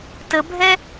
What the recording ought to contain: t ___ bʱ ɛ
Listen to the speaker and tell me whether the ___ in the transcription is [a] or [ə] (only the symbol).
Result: ə